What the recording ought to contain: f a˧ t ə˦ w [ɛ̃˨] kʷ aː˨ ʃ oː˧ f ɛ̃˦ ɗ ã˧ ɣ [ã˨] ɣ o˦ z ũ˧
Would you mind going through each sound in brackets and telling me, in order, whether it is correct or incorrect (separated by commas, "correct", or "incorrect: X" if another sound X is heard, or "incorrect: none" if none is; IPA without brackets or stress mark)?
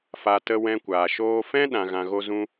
incorrect: ɛ̃˧, incorrect: ã˧